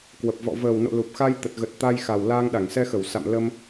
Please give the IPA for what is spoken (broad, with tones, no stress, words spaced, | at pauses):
kwə˨˩p̚vɔ̰˧˨ vəː˨˩wno̰˧˨ lu˨˩p̚xa˧j t̪ə˨˩t̚ɣə˨˩t̚ t̪a˧jxa˨˩w laː˧ŋɗa˧˩ŋsɛ˧xə˧˩w sa̰˧˨m lə˧m